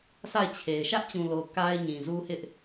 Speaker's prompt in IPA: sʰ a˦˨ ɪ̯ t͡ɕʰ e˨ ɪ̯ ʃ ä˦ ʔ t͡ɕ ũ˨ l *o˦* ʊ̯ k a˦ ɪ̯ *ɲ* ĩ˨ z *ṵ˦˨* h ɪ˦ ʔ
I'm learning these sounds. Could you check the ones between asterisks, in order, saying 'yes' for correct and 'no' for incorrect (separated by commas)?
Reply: no, yes, no